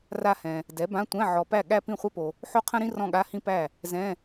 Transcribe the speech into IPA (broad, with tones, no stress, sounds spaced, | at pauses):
r a˥˧ h ɛ̃˨ | d ɛ˩˥ b ã˧˥˧ tʷ ɛ̃˧˥˧ ʕ ɔ˨ p æ˥˩ ɠ æ˥ p ĩ˥˩ χʷ ɛ˥ p o˨ | ħ o˥ qʰ ə̃˥ ɾ ĩ˥ r ɔ̃˥˧ ɠ a˧˥˧ h ĩ˥ p æ˥˩ | z ɛ̃˧˥˧